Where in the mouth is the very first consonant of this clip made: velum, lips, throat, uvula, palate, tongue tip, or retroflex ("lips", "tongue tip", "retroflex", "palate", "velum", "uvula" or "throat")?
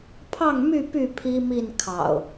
lips